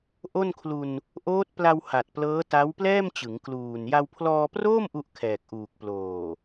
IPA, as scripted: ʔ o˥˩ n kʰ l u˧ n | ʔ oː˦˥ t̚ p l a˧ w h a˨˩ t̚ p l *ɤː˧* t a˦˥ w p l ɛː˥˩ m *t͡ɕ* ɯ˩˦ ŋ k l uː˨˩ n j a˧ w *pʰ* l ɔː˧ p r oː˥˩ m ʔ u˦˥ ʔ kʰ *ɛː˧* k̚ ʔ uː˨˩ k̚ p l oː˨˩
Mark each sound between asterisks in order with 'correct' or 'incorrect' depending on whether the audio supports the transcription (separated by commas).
incorrect, correct, correct, incorrect